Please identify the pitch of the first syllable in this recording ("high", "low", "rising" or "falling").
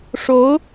rising